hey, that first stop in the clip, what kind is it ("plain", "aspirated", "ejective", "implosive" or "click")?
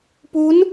plain